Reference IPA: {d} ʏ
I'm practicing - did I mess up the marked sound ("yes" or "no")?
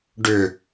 yes